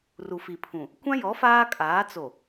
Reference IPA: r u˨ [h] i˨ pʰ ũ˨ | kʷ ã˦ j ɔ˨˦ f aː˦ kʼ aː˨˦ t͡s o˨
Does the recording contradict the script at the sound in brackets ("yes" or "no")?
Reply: yes